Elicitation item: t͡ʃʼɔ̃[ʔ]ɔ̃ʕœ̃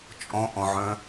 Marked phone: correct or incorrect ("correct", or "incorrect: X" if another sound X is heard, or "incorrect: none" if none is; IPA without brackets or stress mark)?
correct